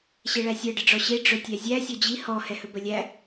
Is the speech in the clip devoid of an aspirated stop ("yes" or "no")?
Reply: yes